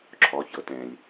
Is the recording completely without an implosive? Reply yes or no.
yes